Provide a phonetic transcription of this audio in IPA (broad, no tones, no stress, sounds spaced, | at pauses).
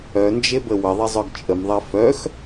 œ n d͡ʒ e b ə w ə ðˤ i zˤ œ ɡ t͡ʃʼ ə m ðˤ ɛ f œ x